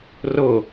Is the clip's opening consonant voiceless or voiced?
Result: voiced